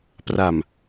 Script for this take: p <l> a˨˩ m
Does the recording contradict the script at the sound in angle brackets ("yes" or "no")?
yes